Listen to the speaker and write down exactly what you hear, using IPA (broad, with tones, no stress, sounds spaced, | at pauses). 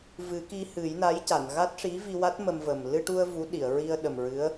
v ɨ˨˩˦ k i˧ h ɨ˨˩˦ j n a˧˥ j c a˨˩˨ n ɣ a˦˥ t̚ ʂ i˧˥ v i˧ w a˦˥ t̚ m ə˧ m v ə˨˩ m l ɨ˧ ʈ u˧ ə̯ v u˧˥ ɗ i˨˩˨ ə̯ ɹ i˧ ə̯ ɗ ə˨˩ m ɹ ɨ˧˥ ə̯